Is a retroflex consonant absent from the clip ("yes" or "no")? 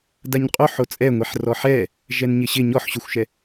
yes